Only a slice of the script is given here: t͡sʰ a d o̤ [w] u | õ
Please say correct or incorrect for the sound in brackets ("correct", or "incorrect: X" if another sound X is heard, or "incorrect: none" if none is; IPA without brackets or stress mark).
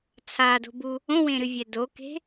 incorrect: b